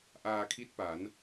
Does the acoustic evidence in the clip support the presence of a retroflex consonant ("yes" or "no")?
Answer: no